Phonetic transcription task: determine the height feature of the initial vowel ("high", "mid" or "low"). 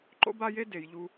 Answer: mid